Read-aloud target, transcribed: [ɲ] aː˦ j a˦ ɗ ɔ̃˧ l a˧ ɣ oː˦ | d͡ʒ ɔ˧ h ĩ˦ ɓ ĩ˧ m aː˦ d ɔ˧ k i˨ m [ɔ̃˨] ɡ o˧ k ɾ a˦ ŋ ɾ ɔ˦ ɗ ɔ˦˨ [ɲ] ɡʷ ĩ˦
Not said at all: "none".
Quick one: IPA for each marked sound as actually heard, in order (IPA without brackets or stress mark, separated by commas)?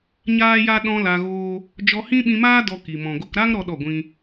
ɲ, ɔ̃˨, none